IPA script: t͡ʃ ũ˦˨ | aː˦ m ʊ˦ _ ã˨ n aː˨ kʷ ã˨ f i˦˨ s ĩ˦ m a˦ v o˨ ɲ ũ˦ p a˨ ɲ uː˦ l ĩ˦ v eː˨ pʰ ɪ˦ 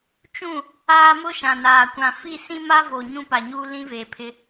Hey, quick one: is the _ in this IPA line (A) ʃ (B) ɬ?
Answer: A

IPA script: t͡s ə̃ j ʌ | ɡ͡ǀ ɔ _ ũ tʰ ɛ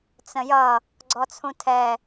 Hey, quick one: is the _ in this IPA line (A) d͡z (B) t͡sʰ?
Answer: B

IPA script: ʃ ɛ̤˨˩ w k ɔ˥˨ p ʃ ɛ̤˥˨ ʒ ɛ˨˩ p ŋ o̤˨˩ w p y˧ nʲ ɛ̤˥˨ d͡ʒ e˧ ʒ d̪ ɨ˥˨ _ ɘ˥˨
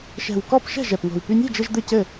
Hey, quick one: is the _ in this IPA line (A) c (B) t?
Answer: A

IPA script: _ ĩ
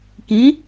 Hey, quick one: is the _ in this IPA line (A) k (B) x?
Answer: A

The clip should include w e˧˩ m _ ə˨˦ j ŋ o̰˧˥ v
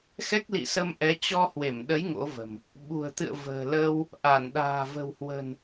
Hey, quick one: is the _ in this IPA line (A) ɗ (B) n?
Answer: A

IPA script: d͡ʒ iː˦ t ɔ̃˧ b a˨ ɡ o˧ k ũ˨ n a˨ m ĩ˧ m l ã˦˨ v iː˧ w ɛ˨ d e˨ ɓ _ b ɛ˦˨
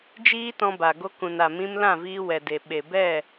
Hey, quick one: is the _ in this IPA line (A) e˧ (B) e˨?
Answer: B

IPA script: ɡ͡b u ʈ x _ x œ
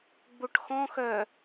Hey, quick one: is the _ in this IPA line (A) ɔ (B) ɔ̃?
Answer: B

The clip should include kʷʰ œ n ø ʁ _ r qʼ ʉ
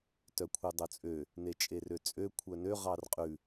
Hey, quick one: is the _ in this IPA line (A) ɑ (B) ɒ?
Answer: A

